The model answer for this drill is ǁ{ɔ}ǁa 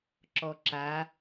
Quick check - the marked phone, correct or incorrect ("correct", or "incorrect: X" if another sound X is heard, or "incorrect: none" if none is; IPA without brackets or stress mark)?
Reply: correct